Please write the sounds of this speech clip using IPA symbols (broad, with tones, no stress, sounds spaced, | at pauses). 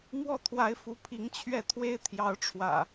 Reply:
m w ɔ˥˨ t̪ʰ w a˨˦ ɪ̯ f u˨˦ pʰ i˨˦ ŋ t͡ɕʰ ɥ ɛ˥˨ t̪ʰ w e˦ ɪ̯ t̪ʰ j ɑ˨˦ ʊ̯ ʈ͡ʂʰ w ä̰˨˩